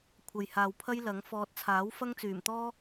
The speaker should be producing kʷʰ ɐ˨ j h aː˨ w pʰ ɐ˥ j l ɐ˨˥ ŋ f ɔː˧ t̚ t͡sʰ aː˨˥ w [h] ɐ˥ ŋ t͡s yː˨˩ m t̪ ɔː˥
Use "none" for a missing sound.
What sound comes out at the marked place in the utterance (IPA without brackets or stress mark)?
f